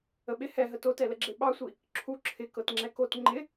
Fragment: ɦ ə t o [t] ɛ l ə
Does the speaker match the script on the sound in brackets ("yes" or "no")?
yes